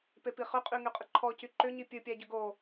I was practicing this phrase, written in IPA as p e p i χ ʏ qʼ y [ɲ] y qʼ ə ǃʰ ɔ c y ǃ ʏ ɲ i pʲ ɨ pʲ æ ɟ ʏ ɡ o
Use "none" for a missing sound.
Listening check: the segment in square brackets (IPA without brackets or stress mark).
ŋ